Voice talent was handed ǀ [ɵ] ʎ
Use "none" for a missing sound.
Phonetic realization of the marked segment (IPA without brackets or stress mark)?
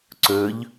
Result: ɵ